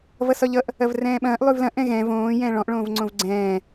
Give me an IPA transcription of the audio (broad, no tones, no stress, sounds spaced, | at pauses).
v ʌ s ɒ ʎ ʌ ʔ | ɐ v r ɛ̃ː ɓ ɐ̃ː ʔ lˠ ʉ v l ɐ̃ ʔ ɛ̃ ɣ ɛ̃ v õː j ɛ̃ː ɭ ɔ̃ ʔ ɭ õː v ŋ͡ǀ õ v ɡ͡ǀ ɛ̃ː